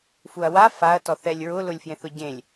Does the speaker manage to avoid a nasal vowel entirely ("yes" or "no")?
no